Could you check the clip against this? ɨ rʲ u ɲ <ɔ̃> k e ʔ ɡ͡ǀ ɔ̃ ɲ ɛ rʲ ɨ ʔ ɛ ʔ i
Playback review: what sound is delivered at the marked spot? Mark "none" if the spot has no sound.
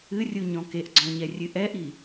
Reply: ɔ̃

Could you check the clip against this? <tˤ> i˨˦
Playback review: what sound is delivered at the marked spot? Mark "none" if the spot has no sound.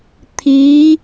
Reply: t̪ʰ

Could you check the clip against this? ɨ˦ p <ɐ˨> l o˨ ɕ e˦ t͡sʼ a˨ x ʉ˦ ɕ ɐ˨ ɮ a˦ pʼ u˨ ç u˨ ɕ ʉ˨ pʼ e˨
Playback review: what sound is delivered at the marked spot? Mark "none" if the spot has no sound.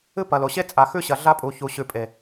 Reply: ɐ˨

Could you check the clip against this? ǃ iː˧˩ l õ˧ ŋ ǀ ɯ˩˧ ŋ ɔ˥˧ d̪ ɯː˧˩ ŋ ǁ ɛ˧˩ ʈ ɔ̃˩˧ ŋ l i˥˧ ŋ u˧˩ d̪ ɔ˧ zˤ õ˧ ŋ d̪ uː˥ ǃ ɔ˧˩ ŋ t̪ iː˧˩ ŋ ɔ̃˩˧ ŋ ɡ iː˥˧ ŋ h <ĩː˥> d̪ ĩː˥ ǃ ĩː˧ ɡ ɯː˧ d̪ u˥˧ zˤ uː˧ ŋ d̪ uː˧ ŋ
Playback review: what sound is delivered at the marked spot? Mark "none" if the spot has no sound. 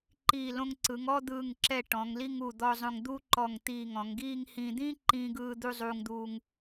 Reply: ĩː˧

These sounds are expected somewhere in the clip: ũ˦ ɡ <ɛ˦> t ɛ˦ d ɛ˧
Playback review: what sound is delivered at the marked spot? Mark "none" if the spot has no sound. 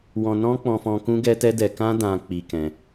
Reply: ɛ˦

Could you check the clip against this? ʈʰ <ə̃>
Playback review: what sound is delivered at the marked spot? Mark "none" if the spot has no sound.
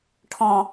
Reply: ɔ̃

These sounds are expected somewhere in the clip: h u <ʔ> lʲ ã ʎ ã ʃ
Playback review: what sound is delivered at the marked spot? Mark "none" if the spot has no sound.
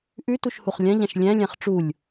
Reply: χ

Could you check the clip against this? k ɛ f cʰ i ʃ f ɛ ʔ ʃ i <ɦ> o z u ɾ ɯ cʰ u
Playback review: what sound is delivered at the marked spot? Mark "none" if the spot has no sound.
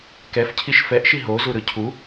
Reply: ɦ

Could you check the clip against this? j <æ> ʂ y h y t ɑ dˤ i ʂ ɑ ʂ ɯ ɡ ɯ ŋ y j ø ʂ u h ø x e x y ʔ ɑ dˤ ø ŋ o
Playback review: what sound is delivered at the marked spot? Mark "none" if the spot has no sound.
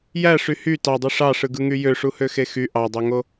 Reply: æ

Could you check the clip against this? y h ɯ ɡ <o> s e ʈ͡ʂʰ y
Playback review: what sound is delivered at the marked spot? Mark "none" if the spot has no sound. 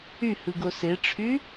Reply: o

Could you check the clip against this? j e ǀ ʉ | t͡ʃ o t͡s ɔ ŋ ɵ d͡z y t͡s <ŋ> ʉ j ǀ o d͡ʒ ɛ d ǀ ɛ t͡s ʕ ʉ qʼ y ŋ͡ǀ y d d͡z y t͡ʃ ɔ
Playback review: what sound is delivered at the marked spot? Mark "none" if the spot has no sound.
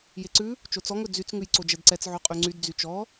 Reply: ŋ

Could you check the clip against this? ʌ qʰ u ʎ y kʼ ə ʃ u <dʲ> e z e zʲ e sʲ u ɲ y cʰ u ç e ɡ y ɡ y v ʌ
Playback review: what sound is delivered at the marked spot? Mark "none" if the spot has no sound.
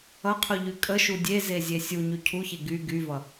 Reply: dʲ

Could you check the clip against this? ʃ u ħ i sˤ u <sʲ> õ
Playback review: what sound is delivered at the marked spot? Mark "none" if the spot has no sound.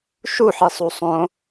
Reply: sˤ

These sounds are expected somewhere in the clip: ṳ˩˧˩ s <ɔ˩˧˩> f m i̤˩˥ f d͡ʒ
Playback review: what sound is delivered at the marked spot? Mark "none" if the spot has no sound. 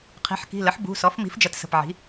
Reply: ɔ˩˥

